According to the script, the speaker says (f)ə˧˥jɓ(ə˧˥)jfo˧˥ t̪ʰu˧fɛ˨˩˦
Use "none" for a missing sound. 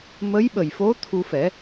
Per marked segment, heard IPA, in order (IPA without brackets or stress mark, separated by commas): m, ə˨˩